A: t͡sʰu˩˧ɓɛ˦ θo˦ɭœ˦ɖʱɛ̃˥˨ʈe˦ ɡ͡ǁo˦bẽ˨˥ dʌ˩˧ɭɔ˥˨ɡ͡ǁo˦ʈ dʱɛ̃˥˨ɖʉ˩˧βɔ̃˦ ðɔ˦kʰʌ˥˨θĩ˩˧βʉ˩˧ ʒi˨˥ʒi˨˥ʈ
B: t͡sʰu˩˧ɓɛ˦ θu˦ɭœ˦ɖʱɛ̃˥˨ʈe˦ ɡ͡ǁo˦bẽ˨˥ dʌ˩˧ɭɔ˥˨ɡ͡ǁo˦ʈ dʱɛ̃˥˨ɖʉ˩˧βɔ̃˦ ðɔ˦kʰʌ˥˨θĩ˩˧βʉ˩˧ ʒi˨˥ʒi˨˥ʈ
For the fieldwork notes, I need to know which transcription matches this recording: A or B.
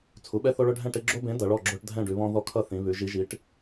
A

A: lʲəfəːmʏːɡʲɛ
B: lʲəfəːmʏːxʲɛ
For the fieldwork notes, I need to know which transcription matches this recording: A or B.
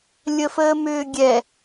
A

